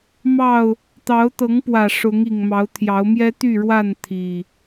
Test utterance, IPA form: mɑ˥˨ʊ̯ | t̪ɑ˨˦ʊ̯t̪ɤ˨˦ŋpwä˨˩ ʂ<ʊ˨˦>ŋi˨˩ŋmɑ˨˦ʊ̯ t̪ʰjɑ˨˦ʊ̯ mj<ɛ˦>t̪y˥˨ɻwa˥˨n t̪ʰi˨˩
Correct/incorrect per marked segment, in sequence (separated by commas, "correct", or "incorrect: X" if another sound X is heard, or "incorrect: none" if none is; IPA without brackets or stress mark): correct, correct